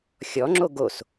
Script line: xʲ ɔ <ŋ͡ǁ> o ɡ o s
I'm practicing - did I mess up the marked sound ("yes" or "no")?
no